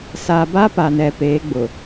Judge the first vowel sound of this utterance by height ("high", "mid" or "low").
low